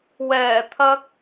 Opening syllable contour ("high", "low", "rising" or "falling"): low